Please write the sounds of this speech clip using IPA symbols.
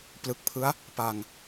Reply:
plɯ˨˩k̚pʰɯ˦˥a̯ | pa˧ŋ

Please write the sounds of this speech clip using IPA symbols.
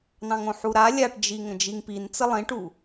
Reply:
nɑ̃ŋõħuɾa lʲaʈd͡ʒi ŋə̃d͡ʒiŋpint͡sə lˠĩʈu

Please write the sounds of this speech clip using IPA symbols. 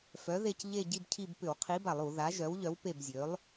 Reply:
fœ˨˥ðe˦˨c ʎe˦˨ ɟi˦˨bcʰi˦˨b pʏ˧˩˧wqʰi˨˥ba˧˩˧lˠu˧˩˧ ða˨˥ʒœ˨˥w ʎœ˨˥wpe˦˨bzʲø˨˥lˠ

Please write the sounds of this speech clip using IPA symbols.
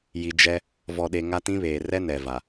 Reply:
ji˨ d͡ʒɛ˦ | vɔ˨ɗe˨ ŋa˦tĩ˦βeː˨ rɛ˦nɛ˨va˨

